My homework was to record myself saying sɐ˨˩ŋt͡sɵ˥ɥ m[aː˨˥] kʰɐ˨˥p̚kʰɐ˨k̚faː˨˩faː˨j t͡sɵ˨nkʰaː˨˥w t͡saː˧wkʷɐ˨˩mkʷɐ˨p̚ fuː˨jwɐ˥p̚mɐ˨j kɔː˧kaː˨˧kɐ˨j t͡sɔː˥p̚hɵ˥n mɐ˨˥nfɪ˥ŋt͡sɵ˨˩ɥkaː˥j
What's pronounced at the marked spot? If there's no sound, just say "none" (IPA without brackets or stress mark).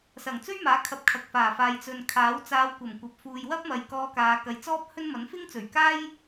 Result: aː˨˥